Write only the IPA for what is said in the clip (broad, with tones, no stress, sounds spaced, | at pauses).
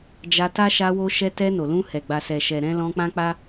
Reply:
d͡ʒ a˧ t a˦ ʃ a˧ w o˧ ʃ ɛ˧ t ɛ˧ n o˨ l ũ˧ h ɛ˨ ɡ͡b a˨ s ɛ˨ ʃ ɛ˨ ɾ ɛ̃˧ l ɔ̃˧ k͡p ã˦ k͡p a˦